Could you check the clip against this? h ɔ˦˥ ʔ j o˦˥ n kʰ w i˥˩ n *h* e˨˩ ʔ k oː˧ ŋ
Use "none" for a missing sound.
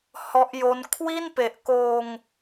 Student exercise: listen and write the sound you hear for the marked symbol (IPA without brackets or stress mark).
p